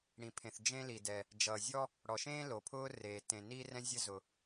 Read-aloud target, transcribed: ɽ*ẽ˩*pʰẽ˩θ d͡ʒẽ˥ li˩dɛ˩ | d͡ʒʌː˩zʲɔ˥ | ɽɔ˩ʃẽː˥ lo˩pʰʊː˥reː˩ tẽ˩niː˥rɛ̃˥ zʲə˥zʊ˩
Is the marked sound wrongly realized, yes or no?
yes